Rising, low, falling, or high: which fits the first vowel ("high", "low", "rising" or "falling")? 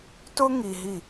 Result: high